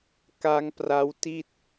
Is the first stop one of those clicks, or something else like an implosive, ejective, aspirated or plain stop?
plain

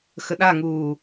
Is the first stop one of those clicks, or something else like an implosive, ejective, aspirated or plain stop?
implosive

